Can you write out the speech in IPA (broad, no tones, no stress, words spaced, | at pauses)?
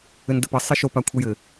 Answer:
ɘndəpə sˤɘʃop akʷʰəjɘ